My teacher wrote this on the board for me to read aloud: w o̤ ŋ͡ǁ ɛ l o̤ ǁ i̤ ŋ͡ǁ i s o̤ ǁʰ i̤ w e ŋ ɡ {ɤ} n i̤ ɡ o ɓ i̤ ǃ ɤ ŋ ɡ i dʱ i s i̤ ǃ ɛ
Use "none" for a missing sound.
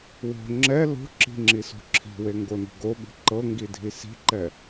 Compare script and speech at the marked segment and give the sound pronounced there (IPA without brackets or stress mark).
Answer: o